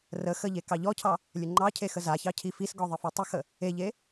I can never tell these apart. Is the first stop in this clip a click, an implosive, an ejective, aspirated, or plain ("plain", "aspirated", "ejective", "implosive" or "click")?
plain